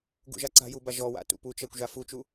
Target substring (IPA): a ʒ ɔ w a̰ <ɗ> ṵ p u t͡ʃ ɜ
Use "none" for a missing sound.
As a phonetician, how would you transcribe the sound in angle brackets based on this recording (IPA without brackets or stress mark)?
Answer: t